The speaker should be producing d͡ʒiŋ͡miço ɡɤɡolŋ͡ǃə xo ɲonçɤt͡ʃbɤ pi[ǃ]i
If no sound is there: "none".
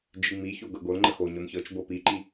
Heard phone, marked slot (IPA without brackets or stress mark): ǃ